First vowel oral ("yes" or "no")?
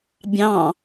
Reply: no